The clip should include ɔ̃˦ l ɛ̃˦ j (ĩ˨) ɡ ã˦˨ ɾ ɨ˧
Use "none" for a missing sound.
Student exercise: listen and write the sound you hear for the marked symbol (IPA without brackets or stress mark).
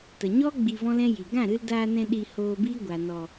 i˨